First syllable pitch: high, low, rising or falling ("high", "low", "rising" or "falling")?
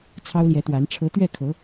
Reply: high